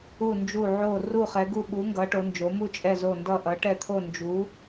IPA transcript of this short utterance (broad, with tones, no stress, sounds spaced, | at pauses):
u˧˩ n d͡ʒ u˧˩ ʕ o˧˩ r u˧˩ χ ɛ˩˧ ɡ u˧˩ ɓ u˩˧ ŋ ɡ ʌ˩˧ ʈ o˩˧ n d͡ʒ o˩˧ m u˧˩ t͡ʃʼ ɛ˧˩ z o˧˩ n d ʌ˧˩ ʔ ʌ˩˧ ʈ ɛ˧˩ t̪ʰ o˧˩ n d͡ʒ u˩˧